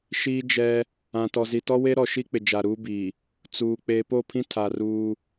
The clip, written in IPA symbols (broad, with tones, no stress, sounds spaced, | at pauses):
ʃ iː˦ d͡ʒ ɛ˦ | ã˨ t ɔ˨ z i˨ t ɔ˦ w e˦ ɾ ɔ˨ ʃ i˦ k͡p ɪ˨ d͡ʒ a˨ ɾ uː˦ b iː˨ | t͡s uː˨ k͡p eː˨ p o˦˨ pʰ ĩ˦ tʰ a˨ r uː˦